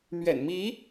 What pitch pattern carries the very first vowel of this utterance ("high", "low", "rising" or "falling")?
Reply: low